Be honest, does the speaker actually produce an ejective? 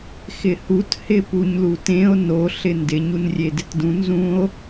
no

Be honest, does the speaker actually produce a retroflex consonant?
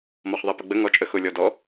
no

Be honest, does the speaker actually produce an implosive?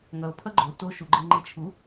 no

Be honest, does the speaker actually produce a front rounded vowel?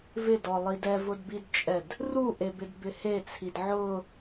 no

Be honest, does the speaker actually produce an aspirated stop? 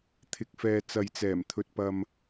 yes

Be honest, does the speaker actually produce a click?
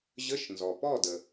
no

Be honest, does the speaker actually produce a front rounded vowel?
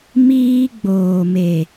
no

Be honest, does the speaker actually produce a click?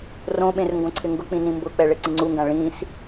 yes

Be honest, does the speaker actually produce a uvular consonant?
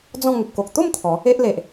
no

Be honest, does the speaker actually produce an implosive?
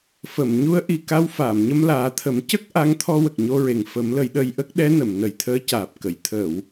yes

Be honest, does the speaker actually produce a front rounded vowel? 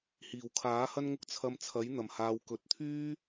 yes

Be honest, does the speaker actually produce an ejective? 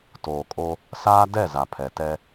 yes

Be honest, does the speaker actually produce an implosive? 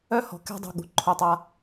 yes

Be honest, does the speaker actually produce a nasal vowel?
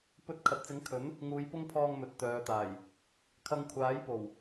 no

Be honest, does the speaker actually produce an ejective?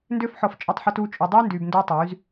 yes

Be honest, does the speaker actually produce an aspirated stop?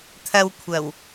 yes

